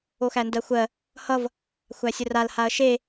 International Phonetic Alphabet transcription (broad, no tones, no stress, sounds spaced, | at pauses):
o x æ n d ɜ xʷ ɜ | h ʌ v | xʷ æ sʲ ə r a l h a ɐ̯ ʃ e